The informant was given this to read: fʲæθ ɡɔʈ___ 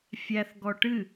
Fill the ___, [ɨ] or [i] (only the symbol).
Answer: ɨ